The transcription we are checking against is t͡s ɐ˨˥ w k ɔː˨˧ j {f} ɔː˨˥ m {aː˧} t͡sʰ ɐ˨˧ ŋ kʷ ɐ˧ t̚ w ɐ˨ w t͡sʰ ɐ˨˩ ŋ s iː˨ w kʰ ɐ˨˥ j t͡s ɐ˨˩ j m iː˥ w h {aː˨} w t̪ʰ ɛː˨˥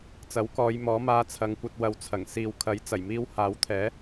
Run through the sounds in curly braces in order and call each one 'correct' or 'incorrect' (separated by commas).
incorrect, correct, incorrect